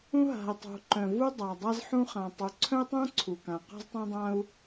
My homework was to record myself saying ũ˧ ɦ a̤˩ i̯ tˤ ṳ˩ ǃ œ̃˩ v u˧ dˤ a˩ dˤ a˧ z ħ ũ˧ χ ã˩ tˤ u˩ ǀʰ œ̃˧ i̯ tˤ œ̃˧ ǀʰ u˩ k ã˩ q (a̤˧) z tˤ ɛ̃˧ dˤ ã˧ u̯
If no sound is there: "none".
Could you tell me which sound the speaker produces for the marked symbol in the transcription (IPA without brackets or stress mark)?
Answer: a̤˧